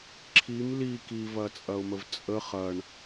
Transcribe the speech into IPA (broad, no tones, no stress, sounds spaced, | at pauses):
ǁʰ i m l i k i v ɐ t͡sʼ ɐ ʊ̯ m ə v t͡sʼ ə χ ɐ ɳ